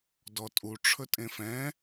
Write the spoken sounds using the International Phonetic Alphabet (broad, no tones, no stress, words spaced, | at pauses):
dɔtʼu ʈ͡ʂʰɵtʼẽfɛ̃